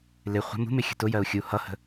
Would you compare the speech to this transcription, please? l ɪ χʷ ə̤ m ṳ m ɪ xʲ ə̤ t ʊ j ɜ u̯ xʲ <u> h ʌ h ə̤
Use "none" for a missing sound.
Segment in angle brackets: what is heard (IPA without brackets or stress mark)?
u